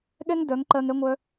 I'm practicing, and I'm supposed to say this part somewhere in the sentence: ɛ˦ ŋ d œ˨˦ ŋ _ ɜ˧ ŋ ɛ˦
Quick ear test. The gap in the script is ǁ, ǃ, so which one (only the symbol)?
ǃ